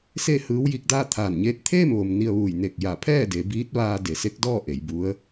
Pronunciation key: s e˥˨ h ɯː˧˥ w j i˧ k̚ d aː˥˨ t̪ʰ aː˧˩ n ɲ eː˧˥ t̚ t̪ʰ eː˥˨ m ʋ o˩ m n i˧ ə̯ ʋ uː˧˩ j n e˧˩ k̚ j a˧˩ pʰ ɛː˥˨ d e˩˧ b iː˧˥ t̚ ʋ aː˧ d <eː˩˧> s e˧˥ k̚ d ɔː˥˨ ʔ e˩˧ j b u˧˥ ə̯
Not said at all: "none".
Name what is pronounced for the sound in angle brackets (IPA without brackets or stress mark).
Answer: e˩˧